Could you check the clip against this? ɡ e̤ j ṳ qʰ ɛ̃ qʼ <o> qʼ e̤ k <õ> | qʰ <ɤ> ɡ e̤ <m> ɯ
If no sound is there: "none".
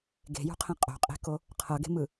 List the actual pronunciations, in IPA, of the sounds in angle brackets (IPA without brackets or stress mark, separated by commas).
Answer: o̤, o, ɤ, m